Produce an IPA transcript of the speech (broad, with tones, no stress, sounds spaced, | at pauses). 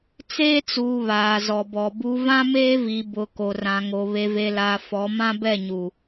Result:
t͡s eː˦ t͡s uː˨ β aː˨ z ɔ˨ b ɔ˨ b u˨ v ã˦ m eː˦ v i˨ b ʊ˨ k o˨ r ã˨ ŋ o˨ β e˨ v e˨ l aː˨ f ɔ˨˦ m ã˦ b ɛ˦˨ ɲ u˨